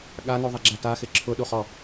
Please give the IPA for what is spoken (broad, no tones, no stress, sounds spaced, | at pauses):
ɠ a n u ðˤ i ɡ͡ǁ a t a x ɪ ǁʰ ʊ ɗ u χ ɔ